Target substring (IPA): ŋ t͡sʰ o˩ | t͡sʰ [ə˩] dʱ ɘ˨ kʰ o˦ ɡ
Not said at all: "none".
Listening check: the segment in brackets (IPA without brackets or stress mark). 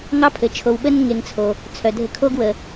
œ˩